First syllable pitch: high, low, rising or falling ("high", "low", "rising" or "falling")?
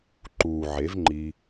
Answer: low